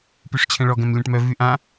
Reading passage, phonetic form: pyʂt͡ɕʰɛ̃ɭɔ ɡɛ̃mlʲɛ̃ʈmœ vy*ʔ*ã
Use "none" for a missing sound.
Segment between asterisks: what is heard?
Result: ʔ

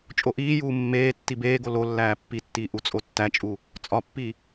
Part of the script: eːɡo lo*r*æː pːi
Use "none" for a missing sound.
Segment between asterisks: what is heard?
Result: lː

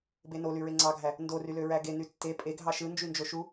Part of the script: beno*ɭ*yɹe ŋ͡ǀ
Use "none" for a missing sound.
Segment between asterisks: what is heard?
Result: l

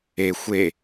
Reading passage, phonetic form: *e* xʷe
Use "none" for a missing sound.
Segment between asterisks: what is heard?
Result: e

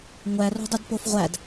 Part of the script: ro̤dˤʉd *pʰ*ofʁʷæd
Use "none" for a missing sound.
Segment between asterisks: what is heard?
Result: p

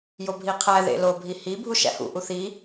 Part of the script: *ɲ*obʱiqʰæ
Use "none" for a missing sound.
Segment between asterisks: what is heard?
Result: j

